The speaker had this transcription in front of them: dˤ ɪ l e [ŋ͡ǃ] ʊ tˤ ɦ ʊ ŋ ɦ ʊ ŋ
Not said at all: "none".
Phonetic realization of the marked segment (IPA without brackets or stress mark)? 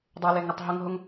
ŋ